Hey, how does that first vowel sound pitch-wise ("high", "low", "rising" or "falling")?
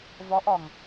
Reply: rising